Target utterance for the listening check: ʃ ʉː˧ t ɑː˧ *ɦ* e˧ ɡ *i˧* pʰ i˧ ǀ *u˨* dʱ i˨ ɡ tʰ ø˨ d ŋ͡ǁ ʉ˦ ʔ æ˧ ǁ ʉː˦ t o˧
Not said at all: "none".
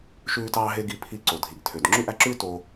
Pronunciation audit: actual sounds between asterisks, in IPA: ɦ, i˧, o˨

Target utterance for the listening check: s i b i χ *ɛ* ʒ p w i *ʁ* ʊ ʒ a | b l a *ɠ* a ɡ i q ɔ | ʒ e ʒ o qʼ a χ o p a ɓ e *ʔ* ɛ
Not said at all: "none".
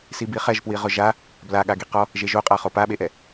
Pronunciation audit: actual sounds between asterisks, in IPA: ɛ, ʁ, ɠ, ʔ

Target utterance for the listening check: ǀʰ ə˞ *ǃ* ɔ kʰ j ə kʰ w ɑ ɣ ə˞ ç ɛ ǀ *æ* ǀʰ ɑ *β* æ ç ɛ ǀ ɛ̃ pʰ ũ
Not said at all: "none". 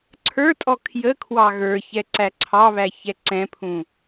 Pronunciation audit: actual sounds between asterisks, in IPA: tʼ, æ, β

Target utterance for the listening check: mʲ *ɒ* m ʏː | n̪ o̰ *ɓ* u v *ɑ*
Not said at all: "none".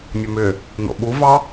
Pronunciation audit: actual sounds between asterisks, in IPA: ɒ, ɓ, ɑ

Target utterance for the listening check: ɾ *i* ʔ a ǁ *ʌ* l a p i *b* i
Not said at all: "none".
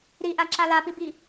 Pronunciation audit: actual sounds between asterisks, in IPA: i, a, b

